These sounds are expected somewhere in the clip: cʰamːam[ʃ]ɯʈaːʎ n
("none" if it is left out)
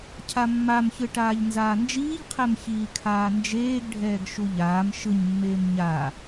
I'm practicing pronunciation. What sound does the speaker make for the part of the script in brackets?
ç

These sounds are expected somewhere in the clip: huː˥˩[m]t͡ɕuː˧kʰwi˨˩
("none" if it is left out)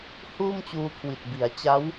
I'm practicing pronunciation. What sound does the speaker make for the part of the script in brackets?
m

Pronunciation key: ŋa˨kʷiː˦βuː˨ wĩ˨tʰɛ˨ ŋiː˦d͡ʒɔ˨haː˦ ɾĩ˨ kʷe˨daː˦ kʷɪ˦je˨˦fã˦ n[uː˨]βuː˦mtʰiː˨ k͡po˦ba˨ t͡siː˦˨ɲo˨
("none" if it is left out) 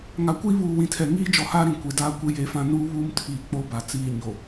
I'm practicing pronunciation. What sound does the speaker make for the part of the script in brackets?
uː˦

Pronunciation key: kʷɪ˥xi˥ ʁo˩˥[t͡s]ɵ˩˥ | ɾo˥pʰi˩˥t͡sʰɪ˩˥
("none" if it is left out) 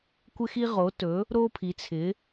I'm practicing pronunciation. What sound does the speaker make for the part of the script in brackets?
t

